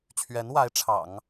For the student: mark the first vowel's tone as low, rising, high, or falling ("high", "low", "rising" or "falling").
rising